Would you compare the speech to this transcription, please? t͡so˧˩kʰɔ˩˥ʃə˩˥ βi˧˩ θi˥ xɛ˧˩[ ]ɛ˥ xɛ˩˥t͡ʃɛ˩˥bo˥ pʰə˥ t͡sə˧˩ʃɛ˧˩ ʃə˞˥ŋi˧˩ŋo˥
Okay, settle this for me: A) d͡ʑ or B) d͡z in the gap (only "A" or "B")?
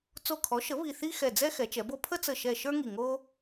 B